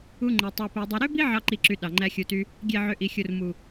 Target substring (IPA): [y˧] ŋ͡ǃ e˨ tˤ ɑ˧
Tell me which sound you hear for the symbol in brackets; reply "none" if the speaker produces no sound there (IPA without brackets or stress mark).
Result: u˧